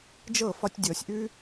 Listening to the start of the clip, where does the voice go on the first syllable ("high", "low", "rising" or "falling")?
falling